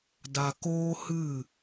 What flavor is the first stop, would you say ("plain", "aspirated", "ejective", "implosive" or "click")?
plain